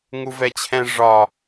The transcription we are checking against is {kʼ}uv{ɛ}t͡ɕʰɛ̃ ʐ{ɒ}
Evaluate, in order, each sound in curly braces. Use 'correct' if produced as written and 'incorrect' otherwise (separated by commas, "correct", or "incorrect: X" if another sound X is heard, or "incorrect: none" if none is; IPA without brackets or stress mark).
incorrect: ŋ, correct, correct